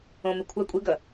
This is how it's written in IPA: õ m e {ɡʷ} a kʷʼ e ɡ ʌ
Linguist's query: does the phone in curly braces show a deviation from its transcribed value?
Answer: yes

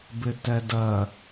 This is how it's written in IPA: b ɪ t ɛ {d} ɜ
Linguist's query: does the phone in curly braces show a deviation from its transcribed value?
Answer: no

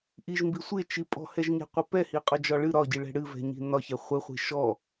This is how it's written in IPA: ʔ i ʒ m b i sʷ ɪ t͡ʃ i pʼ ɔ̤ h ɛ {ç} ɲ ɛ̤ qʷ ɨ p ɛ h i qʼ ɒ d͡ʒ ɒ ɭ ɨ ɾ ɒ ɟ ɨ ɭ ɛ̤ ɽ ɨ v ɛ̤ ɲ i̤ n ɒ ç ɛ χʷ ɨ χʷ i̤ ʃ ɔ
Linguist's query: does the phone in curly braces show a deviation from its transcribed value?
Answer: yes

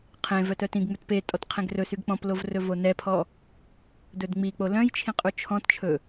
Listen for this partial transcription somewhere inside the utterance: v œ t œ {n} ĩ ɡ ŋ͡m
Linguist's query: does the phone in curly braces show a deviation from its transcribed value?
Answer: yes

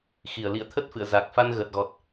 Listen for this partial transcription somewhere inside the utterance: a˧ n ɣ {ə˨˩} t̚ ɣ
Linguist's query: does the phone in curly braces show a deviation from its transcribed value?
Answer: no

